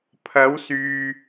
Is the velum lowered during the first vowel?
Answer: no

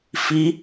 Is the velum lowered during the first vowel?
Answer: no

